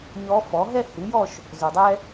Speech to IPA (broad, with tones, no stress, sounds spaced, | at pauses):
ɲ ɔ˧˥ f ɔ˩˥ ɦ ɛ˥˧ h ɨ˩˥ j ɔ˥˧ ʃ | z o˨ dˤ ɛ˥